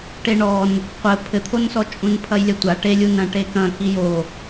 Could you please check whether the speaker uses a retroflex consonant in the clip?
yes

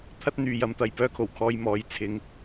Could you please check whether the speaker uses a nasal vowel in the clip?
no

